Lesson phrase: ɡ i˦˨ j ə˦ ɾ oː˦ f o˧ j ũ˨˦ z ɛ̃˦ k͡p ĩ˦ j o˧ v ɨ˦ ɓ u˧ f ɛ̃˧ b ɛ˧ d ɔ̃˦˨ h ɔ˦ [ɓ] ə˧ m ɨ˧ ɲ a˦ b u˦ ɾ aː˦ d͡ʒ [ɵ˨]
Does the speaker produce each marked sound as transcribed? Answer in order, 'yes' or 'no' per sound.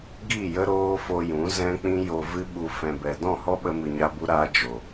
yes, no

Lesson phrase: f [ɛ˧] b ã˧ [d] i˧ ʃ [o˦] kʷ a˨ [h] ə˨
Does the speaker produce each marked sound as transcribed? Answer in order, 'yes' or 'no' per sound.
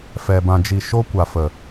yes, no, yes, no

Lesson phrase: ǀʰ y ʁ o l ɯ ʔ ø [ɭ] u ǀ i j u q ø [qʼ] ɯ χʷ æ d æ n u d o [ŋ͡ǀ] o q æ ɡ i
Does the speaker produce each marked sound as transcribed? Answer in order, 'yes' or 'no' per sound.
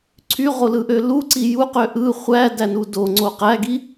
no, no, yes

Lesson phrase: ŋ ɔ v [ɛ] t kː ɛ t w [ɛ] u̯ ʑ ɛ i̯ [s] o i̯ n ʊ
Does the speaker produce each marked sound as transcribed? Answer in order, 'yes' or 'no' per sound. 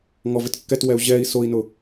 no, yes, yes

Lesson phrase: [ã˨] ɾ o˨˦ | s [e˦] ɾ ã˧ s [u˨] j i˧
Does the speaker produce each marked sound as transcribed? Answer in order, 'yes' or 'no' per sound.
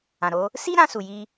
yes, no, yes

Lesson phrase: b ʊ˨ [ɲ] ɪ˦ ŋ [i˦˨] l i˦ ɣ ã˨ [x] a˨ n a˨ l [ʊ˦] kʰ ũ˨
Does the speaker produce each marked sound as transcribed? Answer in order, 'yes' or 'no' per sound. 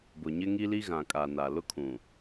yes, no, no, yes

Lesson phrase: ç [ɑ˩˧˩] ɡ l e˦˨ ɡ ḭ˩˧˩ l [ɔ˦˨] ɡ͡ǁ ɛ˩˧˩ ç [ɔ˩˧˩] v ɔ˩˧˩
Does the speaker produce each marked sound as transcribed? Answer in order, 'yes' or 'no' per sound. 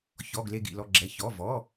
no, yes, yes

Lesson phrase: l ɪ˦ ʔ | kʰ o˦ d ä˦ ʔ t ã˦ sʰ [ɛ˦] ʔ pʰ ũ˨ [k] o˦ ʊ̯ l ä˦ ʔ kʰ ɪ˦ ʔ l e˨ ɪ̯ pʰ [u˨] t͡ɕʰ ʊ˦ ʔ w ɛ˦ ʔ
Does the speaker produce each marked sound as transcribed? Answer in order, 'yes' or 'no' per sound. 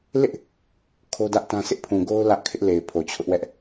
no, no, no

